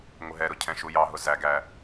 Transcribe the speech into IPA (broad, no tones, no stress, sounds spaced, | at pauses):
ŋʷ ɪ ɦ ɛ ɾ ʊ cʰ ɛ̃ ʃ u j ɑ ɦ ʊ z æ ɡ æ